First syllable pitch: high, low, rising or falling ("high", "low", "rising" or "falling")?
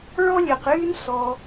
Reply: high